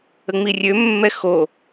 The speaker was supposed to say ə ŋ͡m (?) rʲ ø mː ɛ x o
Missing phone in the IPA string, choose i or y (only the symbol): i